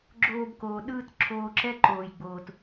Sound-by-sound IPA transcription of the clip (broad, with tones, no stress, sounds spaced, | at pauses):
ɡ͡ǁ oː˧ b k oː˨ ɗ ɯː˦ t ǁʰ oː˧ ǁ ɛ˦ ǃ oː˨ j ɡ͡b oː˨ t